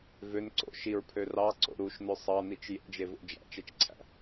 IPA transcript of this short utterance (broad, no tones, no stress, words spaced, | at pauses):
vøn ǀo̰ ʃiɹpʰø rɑǀo̰ ɾuʃnø sˤɑnit͡ʃ jḛd͡ʒevo̰ d͡ʒæ̰t͡ʃet͡ʃǀʰæ̰